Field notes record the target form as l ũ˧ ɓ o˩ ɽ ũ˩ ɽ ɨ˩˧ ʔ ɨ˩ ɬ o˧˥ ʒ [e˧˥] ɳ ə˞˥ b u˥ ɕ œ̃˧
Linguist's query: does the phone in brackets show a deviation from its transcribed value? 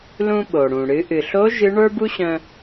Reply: yes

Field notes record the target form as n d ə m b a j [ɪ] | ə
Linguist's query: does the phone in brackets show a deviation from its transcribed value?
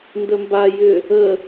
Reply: yes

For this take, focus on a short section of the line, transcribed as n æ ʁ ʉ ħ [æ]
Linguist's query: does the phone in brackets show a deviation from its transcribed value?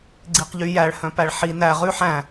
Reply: yes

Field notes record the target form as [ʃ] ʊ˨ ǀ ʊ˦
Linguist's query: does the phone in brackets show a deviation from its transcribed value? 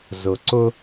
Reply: yes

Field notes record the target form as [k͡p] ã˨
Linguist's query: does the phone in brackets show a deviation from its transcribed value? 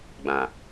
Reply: yes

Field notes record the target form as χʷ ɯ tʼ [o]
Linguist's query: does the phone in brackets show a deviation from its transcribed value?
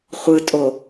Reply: no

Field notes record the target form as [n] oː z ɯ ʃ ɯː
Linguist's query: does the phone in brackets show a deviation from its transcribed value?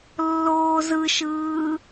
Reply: yes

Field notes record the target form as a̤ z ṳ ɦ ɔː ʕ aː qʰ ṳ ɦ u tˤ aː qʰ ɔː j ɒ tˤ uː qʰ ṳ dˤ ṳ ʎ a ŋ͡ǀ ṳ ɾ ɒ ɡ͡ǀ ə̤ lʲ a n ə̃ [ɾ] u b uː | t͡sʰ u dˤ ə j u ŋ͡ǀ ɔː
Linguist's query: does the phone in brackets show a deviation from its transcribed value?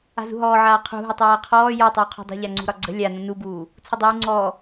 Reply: yes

